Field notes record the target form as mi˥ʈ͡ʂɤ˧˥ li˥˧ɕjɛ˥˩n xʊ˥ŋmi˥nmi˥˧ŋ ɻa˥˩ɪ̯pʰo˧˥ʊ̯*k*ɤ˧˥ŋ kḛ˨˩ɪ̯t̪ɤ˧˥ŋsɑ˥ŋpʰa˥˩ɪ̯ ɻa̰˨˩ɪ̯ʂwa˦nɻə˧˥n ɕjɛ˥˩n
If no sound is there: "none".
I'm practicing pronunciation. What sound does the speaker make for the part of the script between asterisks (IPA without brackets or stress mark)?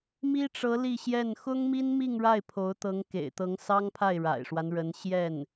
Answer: t̪